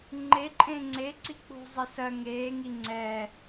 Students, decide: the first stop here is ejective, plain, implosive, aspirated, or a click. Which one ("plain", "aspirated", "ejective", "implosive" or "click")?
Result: click